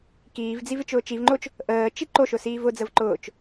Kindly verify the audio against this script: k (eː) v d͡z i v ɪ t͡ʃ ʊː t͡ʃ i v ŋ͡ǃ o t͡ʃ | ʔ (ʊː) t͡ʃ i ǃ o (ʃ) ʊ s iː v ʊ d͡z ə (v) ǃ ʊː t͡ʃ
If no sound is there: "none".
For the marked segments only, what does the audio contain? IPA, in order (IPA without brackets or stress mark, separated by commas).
iː, əː, ʃ, v